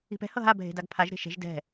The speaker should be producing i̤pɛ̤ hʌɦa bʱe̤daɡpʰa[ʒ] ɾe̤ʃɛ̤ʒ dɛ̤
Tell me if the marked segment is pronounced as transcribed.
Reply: yes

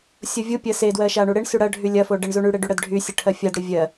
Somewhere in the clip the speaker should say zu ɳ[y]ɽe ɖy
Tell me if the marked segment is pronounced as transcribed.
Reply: yes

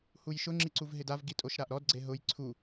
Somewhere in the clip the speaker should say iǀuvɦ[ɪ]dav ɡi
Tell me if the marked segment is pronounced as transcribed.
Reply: yes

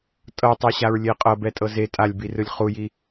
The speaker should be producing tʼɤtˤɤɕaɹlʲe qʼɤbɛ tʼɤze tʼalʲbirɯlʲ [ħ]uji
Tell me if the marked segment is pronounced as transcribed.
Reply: no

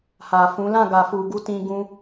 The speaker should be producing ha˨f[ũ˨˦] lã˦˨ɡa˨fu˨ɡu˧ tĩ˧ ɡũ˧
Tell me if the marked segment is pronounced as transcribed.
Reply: yes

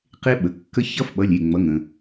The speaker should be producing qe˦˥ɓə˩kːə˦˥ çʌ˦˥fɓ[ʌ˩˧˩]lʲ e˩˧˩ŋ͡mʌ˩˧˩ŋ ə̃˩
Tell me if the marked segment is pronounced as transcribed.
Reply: yes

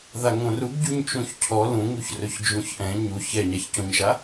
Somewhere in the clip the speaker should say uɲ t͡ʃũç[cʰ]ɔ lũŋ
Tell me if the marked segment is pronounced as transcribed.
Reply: yes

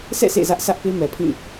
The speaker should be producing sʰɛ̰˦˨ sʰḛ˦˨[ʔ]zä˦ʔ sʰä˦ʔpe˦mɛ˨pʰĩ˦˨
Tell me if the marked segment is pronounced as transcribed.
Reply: no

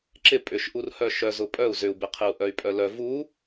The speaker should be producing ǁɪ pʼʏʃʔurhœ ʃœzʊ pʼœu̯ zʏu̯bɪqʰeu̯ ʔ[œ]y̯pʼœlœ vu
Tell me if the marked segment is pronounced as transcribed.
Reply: yes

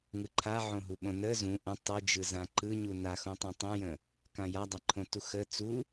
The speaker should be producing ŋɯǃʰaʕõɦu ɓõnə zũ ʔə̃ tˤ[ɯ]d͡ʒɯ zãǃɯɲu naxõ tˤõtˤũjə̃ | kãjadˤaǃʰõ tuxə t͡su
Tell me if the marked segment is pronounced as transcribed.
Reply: yes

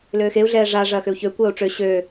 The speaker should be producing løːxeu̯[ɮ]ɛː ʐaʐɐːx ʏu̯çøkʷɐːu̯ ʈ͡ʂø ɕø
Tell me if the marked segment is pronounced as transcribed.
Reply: yes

